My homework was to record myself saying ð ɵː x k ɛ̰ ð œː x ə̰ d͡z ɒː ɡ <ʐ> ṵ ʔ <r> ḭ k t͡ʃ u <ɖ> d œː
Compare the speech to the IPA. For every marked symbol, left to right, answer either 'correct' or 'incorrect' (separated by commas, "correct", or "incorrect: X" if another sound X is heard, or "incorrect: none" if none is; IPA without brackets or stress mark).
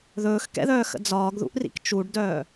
incorrect: ð, correct, correct